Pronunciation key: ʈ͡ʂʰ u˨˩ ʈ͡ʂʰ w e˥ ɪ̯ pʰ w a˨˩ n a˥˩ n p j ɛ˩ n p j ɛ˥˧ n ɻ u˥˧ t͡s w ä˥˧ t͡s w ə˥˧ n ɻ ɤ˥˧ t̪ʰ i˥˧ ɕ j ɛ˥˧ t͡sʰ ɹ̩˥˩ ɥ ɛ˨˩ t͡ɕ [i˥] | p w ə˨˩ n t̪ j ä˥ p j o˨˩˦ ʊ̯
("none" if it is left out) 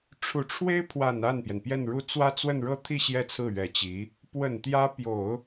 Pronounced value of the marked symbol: i˧˥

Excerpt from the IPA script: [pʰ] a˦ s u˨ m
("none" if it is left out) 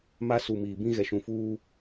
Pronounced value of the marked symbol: m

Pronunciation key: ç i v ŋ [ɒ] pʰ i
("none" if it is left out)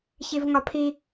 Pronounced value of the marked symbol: ɒ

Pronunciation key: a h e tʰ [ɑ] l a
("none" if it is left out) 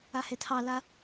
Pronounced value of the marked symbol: ɑ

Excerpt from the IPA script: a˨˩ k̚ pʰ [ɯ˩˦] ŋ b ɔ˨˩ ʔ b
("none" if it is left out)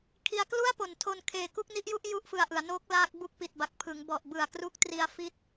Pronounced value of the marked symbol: ɯ˩˦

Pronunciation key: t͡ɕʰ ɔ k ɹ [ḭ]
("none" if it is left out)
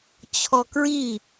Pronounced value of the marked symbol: i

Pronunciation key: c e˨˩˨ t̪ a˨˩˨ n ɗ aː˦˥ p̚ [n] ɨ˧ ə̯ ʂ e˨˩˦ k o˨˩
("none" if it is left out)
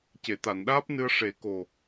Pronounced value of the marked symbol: n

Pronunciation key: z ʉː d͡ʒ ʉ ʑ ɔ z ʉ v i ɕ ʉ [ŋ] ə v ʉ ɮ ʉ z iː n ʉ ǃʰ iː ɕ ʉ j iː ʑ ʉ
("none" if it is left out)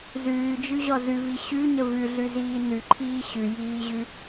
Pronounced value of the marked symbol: ɲ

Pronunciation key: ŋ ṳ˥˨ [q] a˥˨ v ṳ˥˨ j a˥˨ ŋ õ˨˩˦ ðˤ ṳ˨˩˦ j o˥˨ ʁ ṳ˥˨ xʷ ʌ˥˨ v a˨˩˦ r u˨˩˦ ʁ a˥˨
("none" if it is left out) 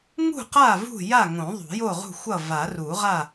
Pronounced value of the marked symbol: q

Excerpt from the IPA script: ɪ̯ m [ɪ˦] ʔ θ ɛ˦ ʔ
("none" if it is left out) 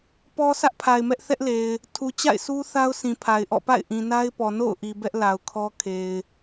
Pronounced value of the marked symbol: ɛ˦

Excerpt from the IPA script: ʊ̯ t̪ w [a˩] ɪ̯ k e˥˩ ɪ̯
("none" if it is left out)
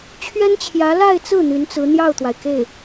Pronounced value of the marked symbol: a˩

